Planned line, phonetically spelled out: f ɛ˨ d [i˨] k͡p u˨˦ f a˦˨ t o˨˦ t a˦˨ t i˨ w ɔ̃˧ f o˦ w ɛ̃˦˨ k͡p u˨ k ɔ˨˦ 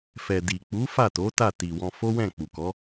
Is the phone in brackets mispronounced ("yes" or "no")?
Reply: no